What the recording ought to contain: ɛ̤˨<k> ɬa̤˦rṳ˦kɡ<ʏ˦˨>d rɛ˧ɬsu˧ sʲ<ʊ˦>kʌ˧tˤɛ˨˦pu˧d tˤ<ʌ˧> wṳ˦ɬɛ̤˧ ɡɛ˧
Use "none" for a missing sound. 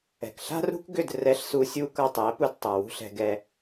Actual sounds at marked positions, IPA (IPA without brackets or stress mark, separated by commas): k, ʏ˦˨, u˦, ʌ˨